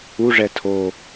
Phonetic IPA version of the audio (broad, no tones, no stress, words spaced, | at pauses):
uʐɛ tʰo